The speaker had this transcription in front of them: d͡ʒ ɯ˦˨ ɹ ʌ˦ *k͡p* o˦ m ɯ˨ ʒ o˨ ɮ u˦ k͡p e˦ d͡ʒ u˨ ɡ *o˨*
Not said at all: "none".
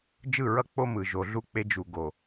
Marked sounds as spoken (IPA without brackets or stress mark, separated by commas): k͡p, o˨